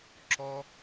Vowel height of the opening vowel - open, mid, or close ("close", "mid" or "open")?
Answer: mid